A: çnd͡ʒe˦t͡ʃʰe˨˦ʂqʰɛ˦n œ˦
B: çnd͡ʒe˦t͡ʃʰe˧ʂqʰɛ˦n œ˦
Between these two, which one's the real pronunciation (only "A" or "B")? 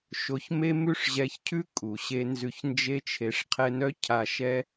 B